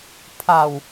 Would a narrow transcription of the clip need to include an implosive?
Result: no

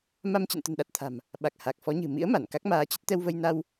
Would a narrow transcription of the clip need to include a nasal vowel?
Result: no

